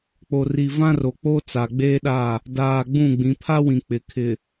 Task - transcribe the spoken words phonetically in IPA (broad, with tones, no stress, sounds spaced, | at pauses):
k͡p o˨ r i˨ v ã˦ r o˨ k͡p o˦ t͡s a˨ ɡ͡b eː˦ ɗ a˦˨ | d aː˨ ɡ͡b ũ˦˨ ɡ͡b ĩ˨˦ pʰ a˦ w ĩ˨ k͡p ɪ˨ kʰ ɪ˨